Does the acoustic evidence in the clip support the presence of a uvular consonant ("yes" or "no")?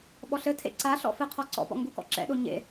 yes